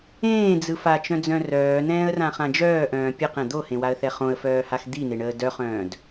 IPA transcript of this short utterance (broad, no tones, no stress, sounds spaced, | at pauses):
ẽː d͡z ɯ f a t͡ʃ œ̃ d͡z œ̃ r œː n ɛ̃ː ə̯ r ã χ ã d͡ʒ œː ʔ œ̃ː pʲ ɯ q ɛ̃ d̪ o h ẽ w a ə̯ θ ɛ χ õ ə̯ f œː h a x d̪ i n e ɳ əː d œ χ œ̃ː d